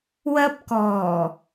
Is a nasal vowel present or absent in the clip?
absent